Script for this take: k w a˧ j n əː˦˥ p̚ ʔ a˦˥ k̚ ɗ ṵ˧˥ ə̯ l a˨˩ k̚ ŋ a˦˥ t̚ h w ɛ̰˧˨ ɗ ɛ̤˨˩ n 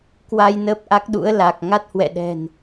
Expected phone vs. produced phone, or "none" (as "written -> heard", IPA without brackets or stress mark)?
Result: none